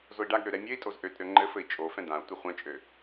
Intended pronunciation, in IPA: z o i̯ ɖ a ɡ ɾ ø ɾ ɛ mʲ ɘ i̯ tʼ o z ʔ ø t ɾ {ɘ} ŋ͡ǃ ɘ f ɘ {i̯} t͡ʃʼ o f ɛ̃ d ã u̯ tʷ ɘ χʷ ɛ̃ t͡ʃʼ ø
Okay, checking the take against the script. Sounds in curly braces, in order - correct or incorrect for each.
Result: incorrect: ø, correct

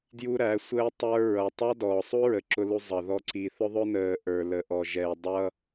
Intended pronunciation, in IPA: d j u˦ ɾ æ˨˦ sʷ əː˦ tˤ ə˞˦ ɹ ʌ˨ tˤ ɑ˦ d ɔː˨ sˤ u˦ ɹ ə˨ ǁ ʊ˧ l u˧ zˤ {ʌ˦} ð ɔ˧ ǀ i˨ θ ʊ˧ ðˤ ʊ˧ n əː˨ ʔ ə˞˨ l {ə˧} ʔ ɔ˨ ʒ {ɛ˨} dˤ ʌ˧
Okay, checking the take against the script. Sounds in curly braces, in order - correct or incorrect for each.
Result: incorrect: ʌ˨, incorrect: ə˨, correct

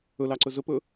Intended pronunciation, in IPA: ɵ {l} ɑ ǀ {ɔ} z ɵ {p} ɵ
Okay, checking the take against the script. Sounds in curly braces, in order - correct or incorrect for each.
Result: correct, incorrect: ɵ, correct

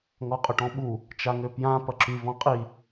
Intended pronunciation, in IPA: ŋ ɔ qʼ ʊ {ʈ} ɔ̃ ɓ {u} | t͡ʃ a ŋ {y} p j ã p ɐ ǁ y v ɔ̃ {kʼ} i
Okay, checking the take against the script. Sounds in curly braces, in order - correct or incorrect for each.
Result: correct, correct, incorrect: ø, incorrect: qʼ

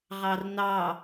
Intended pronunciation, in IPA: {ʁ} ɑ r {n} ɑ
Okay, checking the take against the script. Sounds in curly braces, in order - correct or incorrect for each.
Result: correct, correct

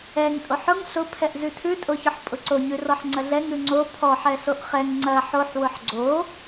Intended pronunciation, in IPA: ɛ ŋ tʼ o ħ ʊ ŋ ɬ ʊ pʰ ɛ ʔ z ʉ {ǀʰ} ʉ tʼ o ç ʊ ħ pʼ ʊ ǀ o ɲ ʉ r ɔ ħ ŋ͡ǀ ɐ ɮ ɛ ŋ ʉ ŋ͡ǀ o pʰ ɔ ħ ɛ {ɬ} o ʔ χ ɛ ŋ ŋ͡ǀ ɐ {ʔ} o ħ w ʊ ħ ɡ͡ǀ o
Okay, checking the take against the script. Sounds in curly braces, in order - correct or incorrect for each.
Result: incorrect: tʰ, correct, incorrect: ħ

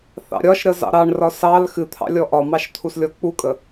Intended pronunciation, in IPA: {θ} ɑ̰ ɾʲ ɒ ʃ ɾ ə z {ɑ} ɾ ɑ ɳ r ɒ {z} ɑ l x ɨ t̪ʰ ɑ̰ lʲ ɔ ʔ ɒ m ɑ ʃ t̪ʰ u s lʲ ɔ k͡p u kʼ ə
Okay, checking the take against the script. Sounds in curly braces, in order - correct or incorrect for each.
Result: correct, incorrect: ɑ̰, incorrect: s

